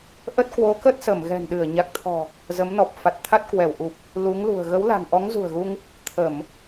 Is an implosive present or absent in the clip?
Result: present